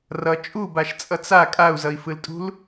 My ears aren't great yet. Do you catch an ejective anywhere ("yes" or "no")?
yes